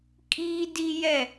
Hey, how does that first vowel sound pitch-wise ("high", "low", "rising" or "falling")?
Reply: high